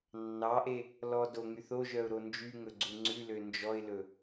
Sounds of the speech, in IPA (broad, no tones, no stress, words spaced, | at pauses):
nːɑʔe | lɔ do ŋyθoʒœʊ̯ ɾond͡ʒyŋɵ ɡ͡ǀuŋ͡ǀʉlø nd͡ʒɔɪ̯lɵ